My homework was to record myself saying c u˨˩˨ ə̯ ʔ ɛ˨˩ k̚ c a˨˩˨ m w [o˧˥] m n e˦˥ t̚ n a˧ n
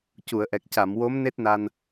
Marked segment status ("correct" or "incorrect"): correct